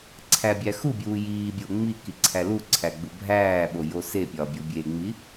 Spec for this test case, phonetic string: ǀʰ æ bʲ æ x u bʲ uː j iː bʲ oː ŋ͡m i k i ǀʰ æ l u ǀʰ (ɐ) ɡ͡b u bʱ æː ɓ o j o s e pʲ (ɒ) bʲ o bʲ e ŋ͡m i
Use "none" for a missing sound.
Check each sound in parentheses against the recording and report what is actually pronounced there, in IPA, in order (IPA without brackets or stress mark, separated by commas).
æ, ɒ